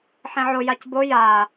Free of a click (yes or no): yes